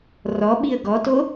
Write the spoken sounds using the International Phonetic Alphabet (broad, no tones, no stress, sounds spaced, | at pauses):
r ɔ ɓ i ə̯ ɡ ɔ t o